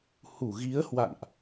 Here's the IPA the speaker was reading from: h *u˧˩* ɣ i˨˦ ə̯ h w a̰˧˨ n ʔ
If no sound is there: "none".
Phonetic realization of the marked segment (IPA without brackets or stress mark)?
u˧˩